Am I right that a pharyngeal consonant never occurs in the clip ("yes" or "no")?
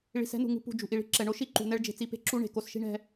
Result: yes